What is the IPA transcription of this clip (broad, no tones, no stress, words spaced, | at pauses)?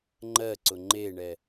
ŋ͡ǃɜǀʊ ŋ͡ǃeɳɛ